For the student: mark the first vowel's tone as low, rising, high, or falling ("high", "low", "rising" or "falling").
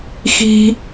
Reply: high